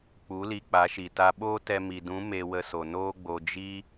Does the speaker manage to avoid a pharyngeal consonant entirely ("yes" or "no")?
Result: yes